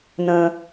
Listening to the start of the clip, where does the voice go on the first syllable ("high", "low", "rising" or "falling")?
low